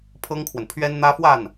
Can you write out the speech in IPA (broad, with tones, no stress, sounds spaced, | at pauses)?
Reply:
pʰ ɤ˥ ŋ kʰ w ə˨ n pʰ ɥ ɛ˥ n n̪ ä˥ f w a˥˩ n